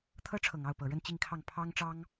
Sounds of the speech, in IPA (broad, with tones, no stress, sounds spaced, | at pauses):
t̪ʰ ɤ˥ ʈ͡ʂʰ ɤ˨˩ ŋ ɑ˥˩ ʊ̯ p ɤ˨˩ ɻ ə˥˧ n t͡ɕ i˥˧ ŋ kʰ ɑ˥˩ ŋ pʰ ɑ˥ ŋ ʈ͡ʂ ɑ˥ ŋ